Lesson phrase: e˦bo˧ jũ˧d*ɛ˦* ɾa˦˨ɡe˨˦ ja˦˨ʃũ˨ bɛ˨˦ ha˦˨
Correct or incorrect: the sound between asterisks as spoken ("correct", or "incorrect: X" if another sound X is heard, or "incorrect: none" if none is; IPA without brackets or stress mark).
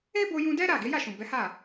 correct